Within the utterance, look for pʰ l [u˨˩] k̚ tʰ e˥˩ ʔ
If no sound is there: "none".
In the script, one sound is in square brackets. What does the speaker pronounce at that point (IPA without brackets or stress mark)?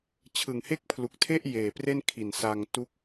u˨˩